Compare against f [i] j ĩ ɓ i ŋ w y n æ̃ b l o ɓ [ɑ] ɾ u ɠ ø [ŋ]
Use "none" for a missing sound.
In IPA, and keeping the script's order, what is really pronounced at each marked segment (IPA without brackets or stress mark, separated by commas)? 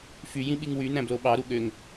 y, ɑ, ŋ